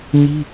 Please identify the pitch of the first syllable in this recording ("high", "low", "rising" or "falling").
high